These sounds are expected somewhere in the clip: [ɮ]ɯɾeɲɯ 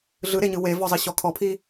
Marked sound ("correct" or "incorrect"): correct